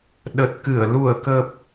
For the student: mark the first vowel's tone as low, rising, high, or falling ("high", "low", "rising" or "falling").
low